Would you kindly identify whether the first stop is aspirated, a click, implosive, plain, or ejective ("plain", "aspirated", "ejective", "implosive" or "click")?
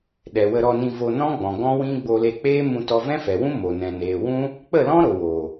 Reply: implosive